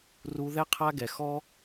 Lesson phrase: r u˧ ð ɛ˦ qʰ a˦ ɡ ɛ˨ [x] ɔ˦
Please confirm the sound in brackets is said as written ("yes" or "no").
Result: yes